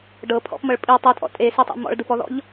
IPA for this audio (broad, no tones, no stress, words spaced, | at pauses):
ɖɤ pʰɔ̰pmɤɭ pʼi tˤitʼɔ̰ tʼesitˤḛ mɔ̰ɭdɯpɔðɔ̰ʎ